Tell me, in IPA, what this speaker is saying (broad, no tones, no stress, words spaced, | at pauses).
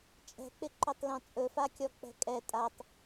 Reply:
t͡ʃʼɛ̤k͡pɪǃɵtˤlɔ̃ t͡sʼɵfakʲɔk͡pɛ̤ kʼɛ tʼatˤ